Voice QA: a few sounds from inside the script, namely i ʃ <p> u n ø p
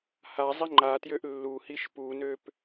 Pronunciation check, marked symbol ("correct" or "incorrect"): correct